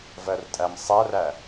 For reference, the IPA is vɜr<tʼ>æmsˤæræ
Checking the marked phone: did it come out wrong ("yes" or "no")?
no